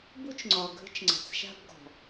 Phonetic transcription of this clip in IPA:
b u˦ t͡ʃ ŋ͡ǀ ɒ˨ ɡʱ ə̤˦ t͡ʃ ŋ͡ǀ a̤˨ t͡s ʃ a̤˦ b ɡ ɔ̤˨

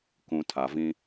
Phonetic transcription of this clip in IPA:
k ũ˨ tʰ a˨ v ĩ˦

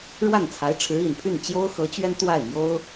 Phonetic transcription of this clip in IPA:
ɻ w a˥˩ n t͡sʰ a˧˥ ɪ̯ ʈ͡ʂʰ ɻ̩˧˥ i˨˩ n pʰ y˥˩ n t͡ɕ j o˥ ʊ̯ x ɤ˧˥ t͡ɕ ɥ ɛ˥ n t̪ w a˥˩ ɪ̯ m j o˥ ʊ̯

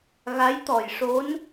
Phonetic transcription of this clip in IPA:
ɣ a˧˥ j t̪ ɔ˨˩ j ʂ o˧˥ n

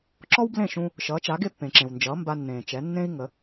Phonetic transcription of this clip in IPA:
ǁ ɔ˥ w b l ẽ˥˩ ʃ ũ˧ | ʃ ʌː˩˥ t͡ʃ a˩˥ ɡ e˥˩ pː ẽ˩ ǁ ẽ˩ w n d͡ʒ ʌː˩˥ m b a˧ nː ẽː˩ t͡ʃ ɛ˩˥ nː ẽ˥ i̯ ŋ ə˩˥

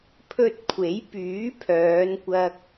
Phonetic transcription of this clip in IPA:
pʰ ɵ˧ t̚ kʷʰ e˨˥ j p yː˨˥ pʰ œː˨˧ n kʷ ɐ˧ k̚

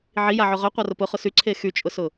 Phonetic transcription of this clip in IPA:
ʕ i j a ʕ ʊ ʁ œ qʷ a r ʊ p ʊ χ ʊ s y ǀʰ e x y t͡ʃʼ ʊ s ʊ

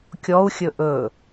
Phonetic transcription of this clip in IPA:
kʲ ɔ u̯ xʲ ɵ ʔ ɵ

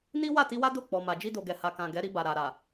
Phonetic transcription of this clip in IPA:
n i˦ w a˦˨ t i˧ w a˦ d o˦˨ k͡p ɔ˨ m a˨ d͡ʒ i˧ d o˨ ɡ ɛ˨ h a˨ k ã˨ ɡ ɛ˨˦ ɾ i˧ b a˨ ɾ a˨ ɾ a˨

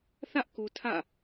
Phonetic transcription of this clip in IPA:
θ ä˦ ʔ k u˨ tʰ ä̰˦˨

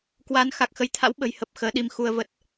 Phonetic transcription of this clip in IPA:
k w aː˨˦ n x a˨˩ k̚ x ə˨˦ j t̪ʰ a̰˧˥ w ɓ ə̤˨˩ j h ə˨˩ p̚ x əː˨˦ ɗ i˧ m x u˧ ə̯ v ə˦˥ t̚

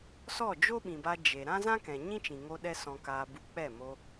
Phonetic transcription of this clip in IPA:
s ɔ˦˨ d͡ʒ o˦ ɓ ĩ˨ b a˧ d͡ʒ e˨ ɾ ã˦ z ã˦ k ɛ̃˨ ɲ ĩ˦ t͡ʃ ĩ˨ ŋ o˧ ɗ ɛ˦ s ɔ̃˧ k aː˧ b u˧ k͡p ɛ˦˨ m o˧

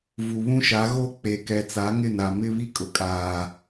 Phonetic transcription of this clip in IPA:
v u˨ β ũ˦ ʃ a˨˦ ɣ o˦ k͡p e˨ k ɛ˨ t͡s a˨˦ ŋ ɪ˦˨ n a˨ m ɪ˦ β i˦ kʼ ʊ˨ kʼ aː˨

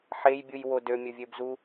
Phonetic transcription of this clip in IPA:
ħ e j bʲ u j w o d ø mʲ ɵ vʲ ø b z u

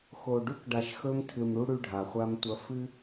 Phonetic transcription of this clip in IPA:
x o˨ ɖ ʉ˦ k ɖ a˨ ʃ x ɵ˦ m tʰ ɨ˨ m ɽ u˦ ɽ ʉ˦ ɖʱ a˨ χʷ a˦ m tʷ ɐ˦ f ɨ˦

